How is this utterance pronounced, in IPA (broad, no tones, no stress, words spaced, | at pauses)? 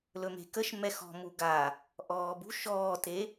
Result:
lɵme̤kəʃ mɛxɔ̤ muɡa | ʔɔːbṳ ʃɔːte